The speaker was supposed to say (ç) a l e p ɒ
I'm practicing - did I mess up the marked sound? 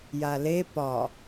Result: yes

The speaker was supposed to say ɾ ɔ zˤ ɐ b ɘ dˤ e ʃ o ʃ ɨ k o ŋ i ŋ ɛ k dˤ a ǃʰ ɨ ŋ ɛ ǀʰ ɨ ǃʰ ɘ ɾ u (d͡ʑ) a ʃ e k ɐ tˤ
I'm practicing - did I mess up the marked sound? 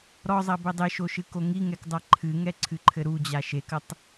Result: no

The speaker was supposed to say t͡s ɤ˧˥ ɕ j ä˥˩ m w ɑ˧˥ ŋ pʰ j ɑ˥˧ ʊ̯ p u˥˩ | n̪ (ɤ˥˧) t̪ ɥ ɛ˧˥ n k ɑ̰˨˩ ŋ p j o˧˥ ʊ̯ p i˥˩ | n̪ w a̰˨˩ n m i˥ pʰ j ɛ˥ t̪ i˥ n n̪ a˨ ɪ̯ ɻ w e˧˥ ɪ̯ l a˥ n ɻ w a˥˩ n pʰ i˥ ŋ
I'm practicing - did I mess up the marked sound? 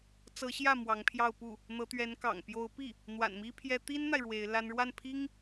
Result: yes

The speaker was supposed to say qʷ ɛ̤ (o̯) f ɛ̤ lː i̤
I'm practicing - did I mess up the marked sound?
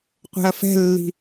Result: yes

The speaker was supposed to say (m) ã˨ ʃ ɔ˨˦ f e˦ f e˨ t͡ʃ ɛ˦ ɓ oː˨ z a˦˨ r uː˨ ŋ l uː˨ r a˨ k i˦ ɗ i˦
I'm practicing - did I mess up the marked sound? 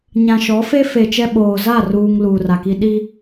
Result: yes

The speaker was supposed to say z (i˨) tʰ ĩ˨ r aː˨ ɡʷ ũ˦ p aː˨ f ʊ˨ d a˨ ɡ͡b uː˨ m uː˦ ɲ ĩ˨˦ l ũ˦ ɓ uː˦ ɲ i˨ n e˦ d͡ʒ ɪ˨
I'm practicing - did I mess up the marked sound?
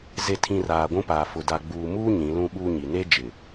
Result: yes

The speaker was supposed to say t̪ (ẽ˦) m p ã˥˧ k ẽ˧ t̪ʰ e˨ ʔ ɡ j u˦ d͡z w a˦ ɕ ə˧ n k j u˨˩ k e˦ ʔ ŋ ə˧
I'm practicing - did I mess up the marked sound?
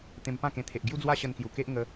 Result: yes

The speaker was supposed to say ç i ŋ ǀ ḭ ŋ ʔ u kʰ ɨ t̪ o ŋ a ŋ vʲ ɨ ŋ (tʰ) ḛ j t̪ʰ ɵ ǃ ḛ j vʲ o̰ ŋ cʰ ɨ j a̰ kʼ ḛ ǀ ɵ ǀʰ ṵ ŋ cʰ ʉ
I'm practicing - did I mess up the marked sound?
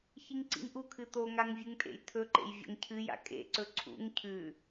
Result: yes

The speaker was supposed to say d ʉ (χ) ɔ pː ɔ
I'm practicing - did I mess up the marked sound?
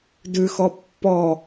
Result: yes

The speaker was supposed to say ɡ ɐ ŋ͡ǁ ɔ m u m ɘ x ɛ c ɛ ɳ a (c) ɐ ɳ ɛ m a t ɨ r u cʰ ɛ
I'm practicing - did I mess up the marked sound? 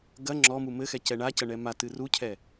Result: no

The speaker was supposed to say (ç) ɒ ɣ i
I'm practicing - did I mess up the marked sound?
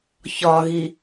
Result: no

